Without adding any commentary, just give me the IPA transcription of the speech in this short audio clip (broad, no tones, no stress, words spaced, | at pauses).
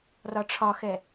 rɒʈ͡ʂʰɒxɛ